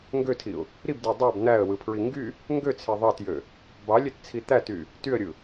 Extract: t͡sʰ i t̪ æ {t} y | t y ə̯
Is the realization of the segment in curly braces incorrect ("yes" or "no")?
no